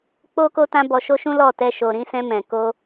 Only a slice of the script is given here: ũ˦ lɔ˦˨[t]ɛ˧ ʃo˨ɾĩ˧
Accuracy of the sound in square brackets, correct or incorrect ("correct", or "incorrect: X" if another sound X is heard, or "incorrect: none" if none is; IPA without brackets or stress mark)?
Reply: correct